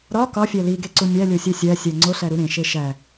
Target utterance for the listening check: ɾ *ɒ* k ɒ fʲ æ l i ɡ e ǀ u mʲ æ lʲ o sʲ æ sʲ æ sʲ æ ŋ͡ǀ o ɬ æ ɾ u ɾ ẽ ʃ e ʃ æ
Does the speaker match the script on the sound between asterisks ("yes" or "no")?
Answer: yes